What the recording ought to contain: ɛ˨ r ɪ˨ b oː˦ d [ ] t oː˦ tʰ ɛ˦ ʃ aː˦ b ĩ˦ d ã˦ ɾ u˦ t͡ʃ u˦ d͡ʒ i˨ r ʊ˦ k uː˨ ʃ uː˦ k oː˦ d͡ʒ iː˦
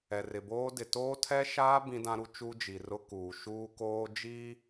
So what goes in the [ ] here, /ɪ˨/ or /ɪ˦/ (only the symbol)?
ɪ˨